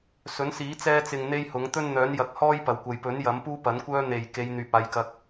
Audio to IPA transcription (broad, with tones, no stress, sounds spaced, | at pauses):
s ɵ˨˥ n s iː˨˥ t͡s ɛː˧ t͡s ɪ˨ ŋ n̪ e˥ j h ʊ˨˥ ŋ t̪ ɵ˥ n n̪ œː˨˥ n j ɐ˨ k̚ h ɔː˥ j p ɐ˨˩ w kʷ ɐ˨ j p ɵ˨˥ n j ɐ˨˥ m p uː˥ p ɐ˨˥ n kʷ œː˥ n̪ e˨˩ j k e˨˧ j n̪ yː˨ p̚ aː˨˧ j k ɐ˧ k̚